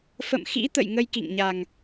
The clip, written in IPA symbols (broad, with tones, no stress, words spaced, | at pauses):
fə̰˧˨mxḭ˧˥t̪ə̰˧˨j ŋə˧jkḭ˧˨ŋɲa˨˩ŋ